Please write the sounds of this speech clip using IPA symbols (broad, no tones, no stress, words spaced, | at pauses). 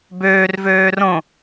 bøːr vøːrõ